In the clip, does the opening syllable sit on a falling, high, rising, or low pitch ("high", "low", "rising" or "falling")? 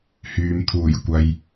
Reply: low